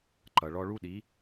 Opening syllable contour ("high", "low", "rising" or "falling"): low